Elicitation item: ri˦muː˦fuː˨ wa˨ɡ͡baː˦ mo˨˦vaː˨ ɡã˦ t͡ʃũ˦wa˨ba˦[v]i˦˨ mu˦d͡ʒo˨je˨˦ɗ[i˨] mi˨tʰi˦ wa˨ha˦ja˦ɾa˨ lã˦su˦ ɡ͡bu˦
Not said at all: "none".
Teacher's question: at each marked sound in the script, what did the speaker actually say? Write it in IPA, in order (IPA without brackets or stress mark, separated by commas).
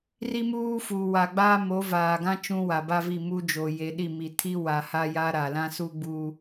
v, i˦˨